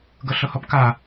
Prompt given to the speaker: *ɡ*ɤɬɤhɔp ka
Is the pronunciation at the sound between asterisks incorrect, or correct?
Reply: correct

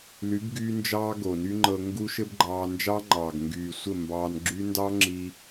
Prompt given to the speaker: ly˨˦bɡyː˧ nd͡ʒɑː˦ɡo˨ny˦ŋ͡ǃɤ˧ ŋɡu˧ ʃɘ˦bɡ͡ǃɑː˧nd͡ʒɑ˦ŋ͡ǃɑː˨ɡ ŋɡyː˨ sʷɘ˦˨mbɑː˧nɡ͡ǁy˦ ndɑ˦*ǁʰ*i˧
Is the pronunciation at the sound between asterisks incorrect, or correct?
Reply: incorrect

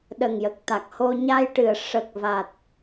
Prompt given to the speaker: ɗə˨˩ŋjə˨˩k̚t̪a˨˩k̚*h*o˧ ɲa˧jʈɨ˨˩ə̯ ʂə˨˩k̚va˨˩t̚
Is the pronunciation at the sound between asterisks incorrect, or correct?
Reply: correct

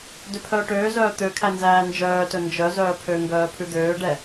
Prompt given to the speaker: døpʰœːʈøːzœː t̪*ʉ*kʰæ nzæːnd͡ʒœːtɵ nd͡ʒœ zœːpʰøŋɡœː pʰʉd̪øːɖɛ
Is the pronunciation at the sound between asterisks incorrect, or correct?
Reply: incorrect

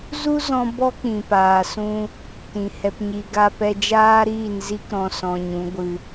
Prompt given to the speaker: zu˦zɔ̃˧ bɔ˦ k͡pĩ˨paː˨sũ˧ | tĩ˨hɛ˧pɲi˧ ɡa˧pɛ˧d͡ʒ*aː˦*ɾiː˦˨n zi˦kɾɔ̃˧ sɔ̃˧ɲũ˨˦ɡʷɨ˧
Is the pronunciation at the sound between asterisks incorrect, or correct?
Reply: correct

